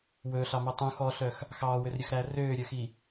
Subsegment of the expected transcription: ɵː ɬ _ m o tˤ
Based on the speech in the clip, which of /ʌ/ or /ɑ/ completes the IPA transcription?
ɑ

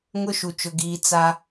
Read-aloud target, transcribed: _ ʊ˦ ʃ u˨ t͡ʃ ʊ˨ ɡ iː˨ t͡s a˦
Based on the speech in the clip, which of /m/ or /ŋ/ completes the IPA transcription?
ŋ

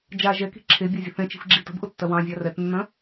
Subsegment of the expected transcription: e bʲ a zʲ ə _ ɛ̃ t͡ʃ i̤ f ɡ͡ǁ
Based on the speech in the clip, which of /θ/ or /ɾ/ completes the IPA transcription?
θ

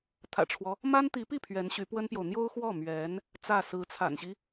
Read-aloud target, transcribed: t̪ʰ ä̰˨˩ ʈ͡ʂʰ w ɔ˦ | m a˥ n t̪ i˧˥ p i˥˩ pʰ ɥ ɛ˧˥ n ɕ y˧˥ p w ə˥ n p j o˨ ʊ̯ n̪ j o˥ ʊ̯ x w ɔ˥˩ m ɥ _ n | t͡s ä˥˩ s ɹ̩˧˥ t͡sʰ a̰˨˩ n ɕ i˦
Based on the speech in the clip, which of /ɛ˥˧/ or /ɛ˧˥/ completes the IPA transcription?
ɛ˧˥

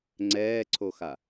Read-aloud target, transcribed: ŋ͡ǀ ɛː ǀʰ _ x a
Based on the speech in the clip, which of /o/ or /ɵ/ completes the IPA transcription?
o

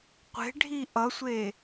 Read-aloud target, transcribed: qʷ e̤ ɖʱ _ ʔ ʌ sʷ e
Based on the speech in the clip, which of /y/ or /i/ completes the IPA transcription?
i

